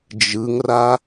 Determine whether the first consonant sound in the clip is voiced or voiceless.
voiced